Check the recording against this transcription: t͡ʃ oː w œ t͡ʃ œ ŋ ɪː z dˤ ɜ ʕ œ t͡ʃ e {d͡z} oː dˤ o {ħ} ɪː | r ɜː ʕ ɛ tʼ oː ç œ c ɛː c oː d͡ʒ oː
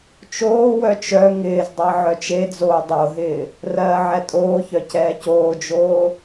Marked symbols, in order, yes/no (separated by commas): yes, no